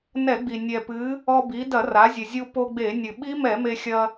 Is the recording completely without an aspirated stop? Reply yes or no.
yes